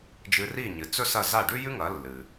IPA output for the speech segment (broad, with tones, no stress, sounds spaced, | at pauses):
d͡ʒ ɨ˧ r i˥˩ ɲ ɨ˩ t͡s ɵ˥ s ɐ˥˩ z a˥˩ ɖ ʉ˥ j ʉ˥ ŋ ɐ˩˥ lː ɨ˩